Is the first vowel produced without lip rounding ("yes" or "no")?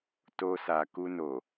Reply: no